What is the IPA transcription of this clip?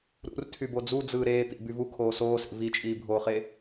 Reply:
ɾ ṵ r tʰ y b o d͡z u d͡z ɯː ɾ eː t̪ ḭ b y v u kʰ oː s oː s ḛ v i t͡ʃʼ iː bʱ oː χ e

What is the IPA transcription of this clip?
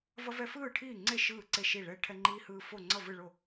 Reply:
v ʌ˦ v ɛ˦ f ɯː˥˨ ʈʰ iː˥˨ ŋ͡ǀ e˥˨ ʃ ɯː˥˨ ǀ e˥˨ ʃ i˥˨ ɭ ɛː˦ ʈʰ ɛ˦ ŋ͡ǃ iː˦ h ɯː˦ f o˥˨ ŋ͡ǀ ʌ˥˨ v ɯ˥˨ ɭ o˥˨

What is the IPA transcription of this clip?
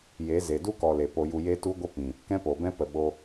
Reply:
j e˨˦ z e˨ d u˦ k ɔ˨ l e˨ p o˧ j u˧ j e˦ t u˦ ɡʷ ə˦ p ĩ˨ | k ɛ̃˦ p o˨ b ɛ̃˦ p ə˨ ɓ o˧

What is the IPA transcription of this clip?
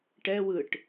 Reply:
ʈ ɛ w ɯ ʈ

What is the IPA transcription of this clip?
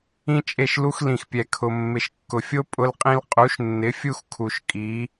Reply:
ĩ˦ t͡ʃʼ e˦˨ ʃ l u˦ x l ĩ˨ x pʲ ɛ˨ kʰ ʊ˨ mː ɪ˨ ʃ kː ʊ˨ fʲ o˦ pʼ ʊ˦ l qʼ ĩ˦ l qʼ u˨˦ ʃ nː ɪ˨˦ fʲ u˦ x kʰ u˨ ʃ kʼ i˨˦

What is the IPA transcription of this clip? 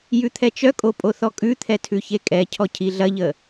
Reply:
j ʉ t̪ʰ ɛ t͡ʃ œ kʼ o pʼ o θ ɔ kʼ ʉ t̪ʰ ɛ tʰ ʉ ç e kʼ ɛ cʰ ɔ cʰ i ɮ ɐ ʎ ə

